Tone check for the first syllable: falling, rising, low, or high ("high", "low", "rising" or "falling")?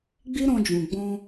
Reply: high